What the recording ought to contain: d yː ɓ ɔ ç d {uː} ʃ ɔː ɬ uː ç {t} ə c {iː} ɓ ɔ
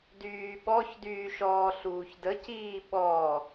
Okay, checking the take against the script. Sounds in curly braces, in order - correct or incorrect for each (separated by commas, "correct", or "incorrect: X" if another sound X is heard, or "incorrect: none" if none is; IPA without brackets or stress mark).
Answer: incorrect: yː, incorrect: d, correct